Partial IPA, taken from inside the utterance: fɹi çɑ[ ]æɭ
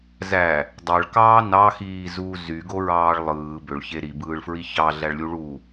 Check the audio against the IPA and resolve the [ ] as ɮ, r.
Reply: ɮ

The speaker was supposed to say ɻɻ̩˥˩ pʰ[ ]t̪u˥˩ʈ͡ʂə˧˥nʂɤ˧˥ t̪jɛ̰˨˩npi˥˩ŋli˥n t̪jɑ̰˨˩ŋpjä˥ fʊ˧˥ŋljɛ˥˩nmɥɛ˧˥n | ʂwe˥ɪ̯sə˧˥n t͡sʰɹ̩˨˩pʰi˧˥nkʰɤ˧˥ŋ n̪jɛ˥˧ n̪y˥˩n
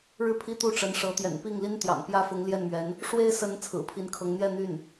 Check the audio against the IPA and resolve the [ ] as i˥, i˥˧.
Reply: i˥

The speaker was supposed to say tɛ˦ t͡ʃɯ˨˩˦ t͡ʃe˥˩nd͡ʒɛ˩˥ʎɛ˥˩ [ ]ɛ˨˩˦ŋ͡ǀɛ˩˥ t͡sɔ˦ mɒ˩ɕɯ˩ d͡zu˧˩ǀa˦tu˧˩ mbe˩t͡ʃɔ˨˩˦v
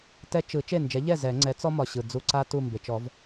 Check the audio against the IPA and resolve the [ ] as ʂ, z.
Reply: z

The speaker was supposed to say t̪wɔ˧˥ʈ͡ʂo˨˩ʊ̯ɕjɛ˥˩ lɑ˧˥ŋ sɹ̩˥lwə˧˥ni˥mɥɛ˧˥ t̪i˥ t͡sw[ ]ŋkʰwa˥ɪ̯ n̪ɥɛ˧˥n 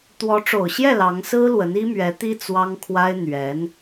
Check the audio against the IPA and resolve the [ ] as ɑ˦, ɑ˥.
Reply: ɑ˥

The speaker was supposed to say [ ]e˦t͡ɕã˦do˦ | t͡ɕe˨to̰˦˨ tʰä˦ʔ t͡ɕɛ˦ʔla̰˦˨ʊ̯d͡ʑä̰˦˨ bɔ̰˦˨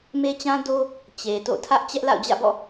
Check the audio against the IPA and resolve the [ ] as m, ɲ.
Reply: m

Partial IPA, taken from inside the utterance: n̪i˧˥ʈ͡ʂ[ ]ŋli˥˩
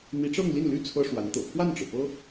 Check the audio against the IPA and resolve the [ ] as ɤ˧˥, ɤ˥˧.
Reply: ɤ˥˧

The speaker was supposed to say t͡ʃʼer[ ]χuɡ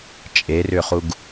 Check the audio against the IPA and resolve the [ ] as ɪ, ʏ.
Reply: ʏ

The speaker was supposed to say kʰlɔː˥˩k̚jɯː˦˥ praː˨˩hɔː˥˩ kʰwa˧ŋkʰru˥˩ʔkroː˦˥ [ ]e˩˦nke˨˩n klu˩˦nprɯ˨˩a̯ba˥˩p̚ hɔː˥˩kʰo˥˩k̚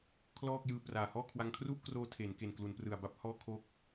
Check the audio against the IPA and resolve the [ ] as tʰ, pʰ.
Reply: tʰ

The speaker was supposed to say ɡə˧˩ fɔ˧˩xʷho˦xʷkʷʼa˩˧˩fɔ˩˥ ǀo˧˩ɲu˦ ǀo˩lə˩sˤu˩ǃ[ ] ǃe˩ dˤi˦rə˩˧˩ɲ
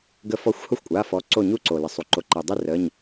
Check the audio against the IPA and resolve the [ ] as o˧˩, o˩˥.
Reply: o˩˥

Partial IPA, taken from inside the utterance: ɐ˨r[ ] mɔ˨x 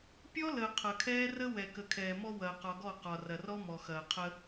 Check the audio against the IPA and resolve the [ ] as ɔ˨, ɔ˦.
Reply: ɔ˦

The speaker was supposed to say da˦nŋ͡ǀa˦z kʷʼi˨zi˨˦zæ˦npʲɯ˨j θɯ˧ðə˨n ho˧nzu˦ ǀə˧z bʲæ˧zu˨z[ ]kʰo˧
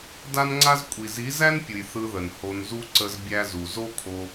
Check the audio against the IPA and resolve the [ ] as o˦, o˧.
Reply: o˦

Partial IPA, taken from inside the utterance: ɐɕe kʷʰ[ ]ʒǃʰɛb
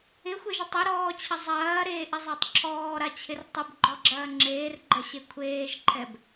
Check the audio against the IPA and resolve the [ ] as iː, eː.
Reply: eː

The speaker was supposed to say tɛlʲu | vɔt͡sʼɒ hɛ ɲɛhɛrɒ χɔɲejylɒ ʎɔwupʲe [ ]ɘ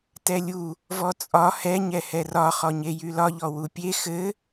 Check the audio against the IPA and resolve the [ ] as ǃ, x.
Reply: x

